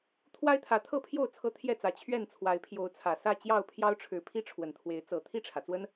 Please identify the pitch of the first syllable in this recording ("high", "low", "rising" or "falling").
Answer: high